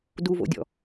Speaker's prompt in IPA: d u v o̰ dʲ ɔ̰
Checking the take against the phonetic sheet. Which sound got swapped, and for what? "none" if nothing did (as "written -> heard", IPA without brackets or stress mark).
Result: none